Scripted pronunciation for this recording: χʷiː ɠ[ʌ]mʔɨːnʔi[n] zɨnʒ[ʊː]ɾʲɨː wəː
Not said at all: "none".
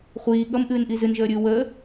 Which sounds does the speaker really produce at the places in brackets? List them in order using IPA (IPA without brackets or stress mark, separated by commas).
ʌ, none, əː